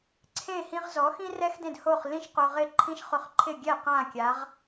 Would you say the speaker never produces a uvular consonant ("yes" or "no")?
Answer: no